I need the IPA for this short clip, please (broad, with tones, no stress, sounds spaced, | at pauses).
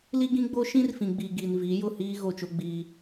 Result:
l i˦ ɡ ĩ˦ ɡ͡b o˦ ʃ ĩ˦ r f ĩ˨ ɡ͡b i˨ ɡ i˨ n v i˨˦ j ʊ˦˨ h iː˦ ɣ o˦˨ t͡ʃ o˦ ɡ͡b iː˦